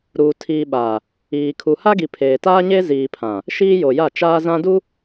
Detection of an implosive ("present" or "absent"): present